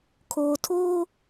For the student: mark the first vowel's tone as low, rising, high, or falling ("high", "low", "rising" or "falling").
low